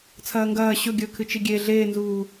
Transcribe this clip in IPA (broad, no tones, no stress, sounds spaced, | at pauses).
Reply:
t͡sʰ ɐː ŋ ɡ ɐː ɕ ɵ ɡʲ ɵː kʰ ɨ t͡ʃ i ɡʲ e ɮ eː n z uː